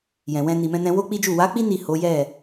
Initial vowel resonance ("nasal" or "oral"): nasal